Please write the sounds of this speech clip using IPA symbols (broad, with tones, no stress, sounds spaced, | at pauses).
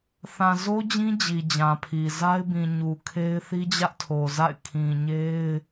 θ ã˨ z o˦ d͡ʑ ĩ˦ d͡ʑ i˨ d͡ʑ ã˨ pʰ i˨ z a˦ ɪ̯ b ĩ˨ ɲ u˨ kʰ e˦ ɪ̯ θ i˦ d͡ʑ ä˦ ʔ tʰ o˨ z a̰˦˨ ɪ̯ kʰ ĩ˨ ɲ e˦ ɪ̯